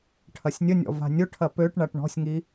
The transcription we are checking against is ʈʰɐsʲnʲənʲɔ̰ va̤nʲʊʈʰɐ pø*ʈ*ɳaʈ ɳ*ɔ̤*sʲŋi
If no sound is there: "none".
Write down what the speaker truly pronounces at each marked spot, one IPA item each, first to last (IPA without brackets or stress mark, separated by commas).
ʈ, ɔ̤